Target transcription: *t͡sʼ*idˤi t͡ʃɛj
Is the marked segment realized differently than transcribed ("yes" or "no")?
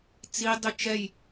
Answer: yes